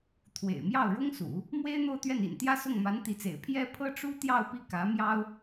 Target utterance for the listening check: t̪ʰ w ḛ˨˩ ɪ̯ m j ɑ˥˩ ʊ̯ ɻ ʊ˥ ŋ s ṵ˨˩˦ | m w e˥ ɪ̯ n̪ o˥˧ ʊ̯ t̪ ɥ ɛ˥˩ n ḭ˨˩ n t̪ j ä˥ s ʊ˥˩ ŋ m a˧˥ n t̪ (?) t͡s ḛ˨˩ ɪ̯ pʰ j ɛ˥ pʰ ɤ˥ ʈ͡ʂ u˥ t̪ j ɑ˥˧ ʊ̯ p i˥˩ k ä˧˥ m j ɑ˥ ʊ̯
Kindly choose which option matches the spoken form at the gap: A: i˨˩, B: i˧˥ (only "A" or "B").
B